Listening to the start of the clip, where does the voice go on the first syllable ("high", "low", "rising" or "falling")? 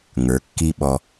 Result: rising